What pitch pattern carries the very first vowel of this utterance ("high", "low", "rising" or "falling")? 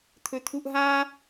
low